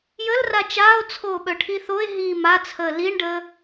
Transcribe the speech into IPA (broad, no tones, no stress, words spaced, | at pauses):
jəlra t͡ʃaːo̯t͡sʰoːɓœʈʰi θoe̯ɦiː mat͡sʰəː liɳɖəː